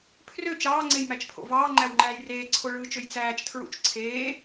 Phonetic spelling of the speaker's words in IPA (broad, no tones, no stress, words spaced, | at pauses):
pʰrø t͡ʃɑːŋ͡ǀejmæt͡ʃpʰo̰ vɑːŋ͡ǃæwŋ͡ǃæːj reːǀʰoɭɯːt͡ʃøj t͡sæːt͡ʃtʰɹṵt͡ʃ ǀʰeː